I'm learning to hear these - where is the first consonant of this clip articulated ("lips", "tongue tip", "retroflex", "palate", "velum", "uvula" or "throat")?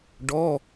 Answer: retroflex